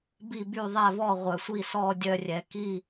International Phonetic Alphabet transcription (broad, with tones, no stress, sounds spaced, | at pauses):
b i˦˨ b y˦˨ ðˤ ɛ˦˨ v ɔ˦˨ ʁʷ œ˩ sʷ i˦˨ s ɔ˦˨ dʲ œ˦˨ rʲ ɛ˩ k i˦˨